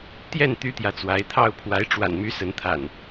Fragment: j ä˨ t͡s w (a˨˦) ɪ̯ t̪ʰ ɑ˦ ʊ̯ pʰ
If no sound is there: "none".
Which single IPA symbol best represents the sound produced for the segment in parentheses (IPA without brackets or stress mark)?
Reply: a˨˦